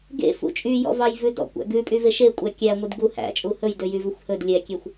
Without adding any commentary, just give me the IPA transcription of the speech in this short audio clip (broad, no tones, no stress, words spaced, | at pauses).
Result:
ɡḛ fṵt͡ʃʼy jɔ̰vɑjvʉdɔ̰ kʷæ̰ɡʉ pʼyveʃekʷʼæ kʲæ ŋʷidɡu hæ̰t͡ʃʼu hɵj døjyvɵxʷhɵd lʲɛkʲexʷ